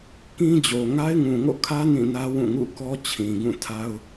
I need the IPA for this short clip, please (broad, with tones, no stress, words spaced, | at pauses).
kĩ˦d͡ʑo˨ ŋa˦ɪ̯ŋũ˨ŋo̰˦˨kʰä˦ nĩ˦˨nä˦wũ˦˨ ŋṵ˦˨kɔ˦t͡ɕʰĩ˨ɡũ˦˨ tʰa˦ʊ̯